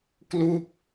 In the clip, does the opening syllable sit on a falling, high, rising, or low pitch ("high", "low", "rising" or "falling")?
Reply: falling